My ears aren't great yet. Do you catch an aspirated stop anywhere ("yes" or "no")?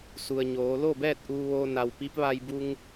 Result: no